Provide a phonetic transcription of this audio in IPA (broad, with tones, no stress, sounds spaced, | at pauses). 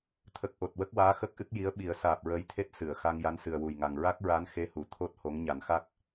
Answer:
t̪ʰ ə˨˩ k̚ ʔ o˨˩ t̚ w ə˦˥ k̚ w aː˧˥ x ə˦˥ k̚ ʔ ɨ˦˥ k̚ j i˧˥ ə̯ ɓ i˨˩˦ ə̯ s aː˨˩ p̚ ɹ əː˧˥ j t̪ʰ e˦˥ t̚ s ɨ˨˩˨ ə̯ x a˧ ŋ j a˧˥ n s ɨ˨˩ ə̯ w u˨˩ j ŋ a˨˩ ŋ ɹ a˦˥ k̚ ɹ a˧˥ n x e˧˥ h u˨˩˨ t̪ʰ o˦˥ t̚ h o˧˥ ŋ ɲ a˨˩˦ n x a˦˥ k̚